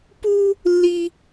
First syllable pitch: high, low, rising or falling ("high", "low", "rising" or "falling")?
high